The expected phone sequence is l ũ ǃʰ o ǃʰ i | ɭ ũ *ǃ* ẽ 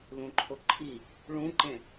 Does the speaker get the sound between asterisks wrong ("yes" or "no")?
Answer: no